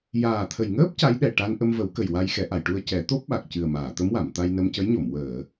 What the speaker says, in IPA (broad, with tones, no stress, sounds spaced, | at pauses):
j aː˨˩ t̪ʰ ə˨˩ j ŋ əː˦˥ p̚ c a˧˥ j ɗ ɛ˨˩ ʈ a˧ n ʔ ə˧ m v ə˨˩˦ w k ə˨˩ j w a˧ j x ɛ˨˩˦ ʔ a˨˩˨ j ʈ u˧ ə̯ c ɛ˨˩˦ t̪ o˦˥ p̚ ɓ a˨˩ k̚ c ɨ˨˩ ə̯ m aː˨˩˨ t̪ ə˧˥ m w a˨˩˨ m t̪ a˧ j n ə˧ m c ə˧˥ j ɲ o˨˩˨ m w əː˨˩˨